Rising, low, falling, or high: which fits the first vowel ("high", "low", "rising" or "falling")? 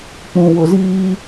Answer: low